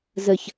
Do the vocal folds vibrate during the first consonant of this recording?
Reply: yes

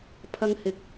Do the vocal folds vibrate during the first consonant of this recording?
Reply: no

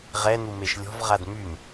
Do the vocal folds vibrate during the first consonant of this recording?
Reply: yes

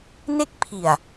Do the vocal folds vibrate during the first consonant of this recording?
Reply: yes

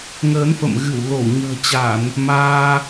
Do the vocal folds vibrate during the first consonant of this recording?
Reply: yes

